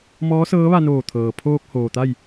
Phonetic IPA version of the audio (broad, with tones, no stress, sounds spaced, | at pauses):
m ɔː˧˥ s ɤː˧˥ ʋ a˧ n oː˧˩ t̪ʰ ɤː˩ pʰ oː˧ k̚ h oː˩ t̪ a˥˨ j